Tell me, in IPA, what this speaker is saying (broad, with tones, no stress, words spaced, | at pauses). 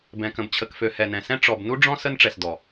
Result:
bɛ̃˨kə̃˨bt͡ɕʰə˨kfø˨ hɛ˨nɛ̃˨sɛ̃˦ ʈ͡ʂɔ˨b nu˦ ɖ͡ʐɔ̃˦ sə˦nʈ͡ʂɛ˨sdɔ˨